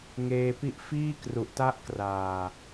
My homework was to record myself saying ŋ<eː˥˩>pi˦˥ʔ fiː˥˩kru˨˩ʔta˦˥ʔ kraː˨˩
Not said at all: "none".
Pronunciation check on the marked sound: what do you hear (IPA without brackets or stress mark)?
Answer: eː˧